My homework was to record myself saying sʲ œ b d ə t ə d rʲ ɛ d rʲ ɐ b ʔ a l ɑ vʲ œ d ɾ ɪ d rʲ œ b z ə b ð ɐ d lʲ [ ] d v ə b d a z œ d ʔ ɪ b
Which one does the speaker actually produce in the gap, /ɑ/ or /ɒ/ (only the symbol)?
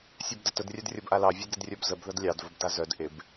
ɑ